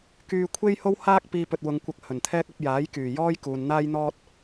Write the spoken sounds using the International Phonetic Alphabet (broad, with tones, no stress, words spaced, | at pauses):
kyː˧ kʷʰe˥jho˥whaː˥k̚ piː˧pɵ˨t̚wʊ˨˧ŋkʷɐ˧k̚ hɵ˨˩nt̪ʰɛː˥k̚ɐ˨˥p̚ jaː˨˥j kyː˨˩ jɔː˥jkuː˨n n̪aː˥jn̪ɔː˥t̚